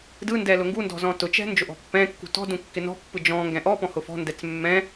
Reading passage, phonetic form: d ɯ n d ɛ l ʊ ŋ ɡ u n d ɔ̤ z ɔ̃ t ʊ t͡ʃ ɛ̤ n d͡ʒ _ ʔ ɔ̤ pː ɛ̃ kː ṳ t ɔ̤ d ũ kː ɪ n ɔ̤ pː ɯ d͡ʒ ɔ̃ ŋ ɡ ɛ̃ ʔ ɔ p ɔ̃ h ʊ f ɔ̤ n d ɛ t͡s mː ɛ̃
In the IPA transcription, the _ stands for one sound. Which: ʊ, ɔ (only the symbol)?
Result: ʊ